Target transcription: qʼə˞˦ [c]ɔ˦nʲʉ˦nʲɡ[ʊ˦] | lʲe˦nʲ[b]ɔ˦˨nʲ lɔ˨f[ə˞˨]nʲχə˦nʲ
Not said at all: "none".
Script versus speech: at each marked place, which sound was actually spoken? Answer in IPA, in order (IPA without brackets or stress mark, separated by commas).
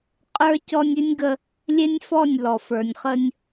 c, ə˦, f, ə˞˨